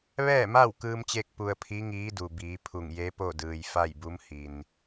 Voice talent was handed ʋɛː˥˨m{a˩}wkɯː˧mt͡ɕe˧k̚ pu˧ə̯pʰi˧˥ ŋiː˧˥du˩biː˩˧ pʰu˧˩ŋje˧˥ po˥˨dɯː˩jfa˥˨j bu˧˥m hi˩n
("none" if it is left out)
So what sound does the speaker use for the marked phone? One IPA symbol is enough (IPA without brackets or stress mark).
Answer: a˥˨